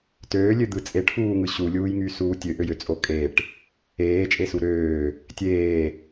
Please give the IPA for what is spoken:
tøːlʲød̪ɯ t͡sʼeʈfuːŋɯ ɕulʲuːjŋysuː tʲøʔøjøt͡sʼo kʼeʈ | eːt͡ʃʼesu ɾøː | tʲeː

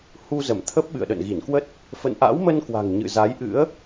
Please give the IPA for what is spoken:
hu˧zə˧˩mt̪ʰə˦˥p̚ ɓɨ̰˧˨ə̯ɗə̰˧˨nɣi˧˩nkwə˦˥t̚ | fə̰˧˨nʔa̰˧˥wmə˧n kwa̤˨˩ŋɲɨ̰˧˨za˨˦jʔɨ̰˧˥ə̯

